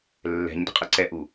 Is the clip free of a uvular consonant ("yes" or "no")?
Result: no